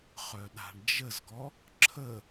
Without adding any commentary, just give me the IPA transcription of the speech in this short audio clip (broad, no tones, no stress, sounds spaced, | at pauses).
χ œ ɗ a̤ ɳ d͡ʒ ə z ɡ ɔ | ǁʰ ə